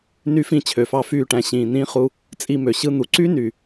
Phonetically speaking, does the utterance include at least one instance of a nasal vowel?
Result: yes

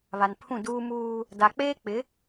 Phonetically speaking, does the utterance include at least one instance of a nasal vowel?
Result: yes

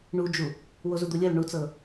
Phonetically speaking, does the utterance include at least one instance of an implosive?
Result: no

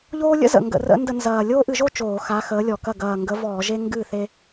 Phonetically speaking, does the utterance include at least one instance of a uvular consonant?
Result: no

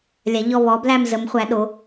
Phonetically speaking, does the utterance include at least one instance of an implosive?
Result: yes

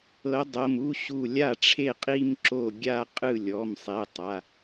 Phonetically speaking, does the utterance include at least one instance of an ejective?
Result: yes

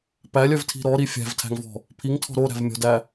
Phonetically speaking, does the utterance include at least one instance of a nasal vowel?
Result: no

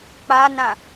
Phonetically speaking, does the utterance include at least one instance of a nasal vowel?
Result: yes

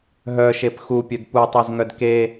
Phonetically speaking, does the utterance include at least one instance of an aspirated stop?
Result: no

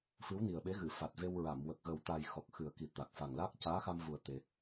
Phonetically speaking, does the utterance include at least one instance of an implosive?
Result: yes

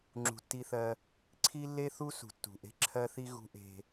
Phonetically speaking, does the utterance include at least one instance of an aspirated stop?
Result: yes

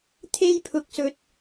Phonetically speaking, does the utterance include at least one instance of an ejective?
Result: no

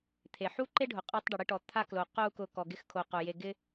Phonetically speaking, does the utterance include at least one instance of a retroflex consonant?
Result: yes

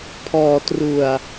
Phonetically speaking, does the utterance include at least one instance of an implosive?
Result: no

